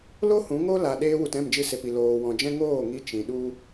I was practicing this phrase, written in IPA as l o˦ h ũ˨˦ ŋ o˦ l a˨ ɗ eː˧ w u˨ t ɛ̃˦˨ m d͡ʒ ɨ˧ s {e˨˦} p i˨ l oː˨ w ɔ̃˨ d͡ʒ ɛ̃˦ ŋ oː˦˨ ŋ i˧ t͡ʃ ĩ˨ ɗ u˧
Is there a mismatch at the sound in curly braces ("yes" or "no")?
yes